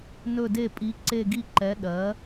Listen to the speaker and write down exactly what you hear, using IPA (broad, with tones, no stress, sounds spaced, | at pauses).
n ɵ˦˨ d e˦˨ pʼ i˨˥ ǀ e˦˨ ɡ i˦˨ ǃ ɛ˨˥ ɗ ɜ˨˥